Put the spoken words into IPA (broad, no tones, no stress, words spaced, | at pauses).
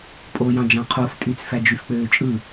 pʼojɑ̃ d͡ʒɑ̃qʰof tʼyt͡sfæ d͡ʒyfk͡pøːt͡ʃʼɯ